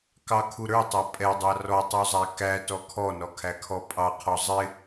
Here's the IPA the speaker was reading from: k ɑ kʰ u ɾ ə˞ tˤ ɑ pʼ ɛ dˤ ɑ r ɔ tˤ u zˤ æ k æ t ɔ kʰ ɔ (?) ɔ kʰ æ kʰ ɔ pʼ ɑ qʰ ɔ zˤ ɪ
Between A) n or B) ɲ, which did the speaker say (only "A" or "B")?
A